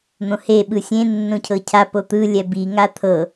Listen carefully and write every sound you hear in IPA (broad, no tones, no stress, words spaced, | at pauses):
n̪õhe ɓɯsʲẽ nːõcʰɤcʰa pot̪ɯ lʲɛbi ŋat̪ʰɤ